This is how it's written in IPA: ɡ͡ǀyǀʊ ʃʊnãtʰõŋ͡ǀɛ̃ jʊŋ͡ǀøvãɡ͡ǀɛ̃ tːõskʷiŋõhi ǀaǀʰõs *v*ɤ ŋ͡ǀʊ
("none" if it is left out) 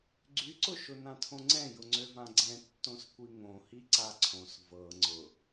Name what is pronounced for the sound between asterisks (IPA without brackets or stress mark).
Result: v